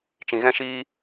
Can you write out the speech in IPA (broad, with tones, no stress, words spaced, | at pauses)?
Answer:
t͡ʃĩ˧ɣɛ̃˦ʃiː˦